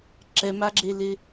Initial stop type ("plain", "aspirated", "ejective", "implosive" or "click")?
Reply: click